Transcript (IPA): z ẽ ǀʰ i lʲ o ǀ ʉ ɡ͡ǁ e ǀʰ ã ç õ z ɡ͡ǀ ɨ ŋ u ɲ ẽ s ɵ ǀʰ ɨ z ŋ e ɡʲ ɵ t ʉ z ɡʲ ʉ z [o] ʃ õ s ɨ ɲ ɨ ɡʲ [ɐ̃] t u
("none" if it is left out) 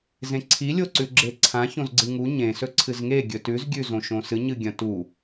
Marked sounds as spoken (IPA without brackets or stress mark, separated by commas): õ, ɐ̃